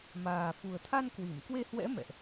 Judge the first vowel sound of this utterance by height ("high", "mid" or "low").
low